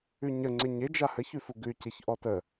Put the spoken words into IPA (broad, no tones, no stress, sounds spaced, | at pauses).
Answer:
ʉ ɲ ə ŋ͡ǀ ɪ ɲ ɪ d͡ʒ a h ə ç ʉ f u ɡ ʉ y̯ c ɪ ç ʔ ɔ t ə